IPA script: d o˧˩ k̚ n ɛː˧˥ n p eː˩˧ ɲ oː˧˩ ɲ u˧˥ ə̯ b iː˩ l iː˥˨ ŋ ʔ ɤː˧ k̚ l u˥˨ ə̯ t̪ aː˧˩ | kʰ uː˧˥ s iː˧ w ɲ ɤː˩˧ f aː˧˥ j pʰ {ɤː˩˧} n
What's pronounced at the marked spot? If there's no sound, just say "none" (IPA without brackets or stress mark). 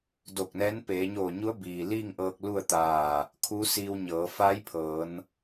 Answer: ɤː˩˧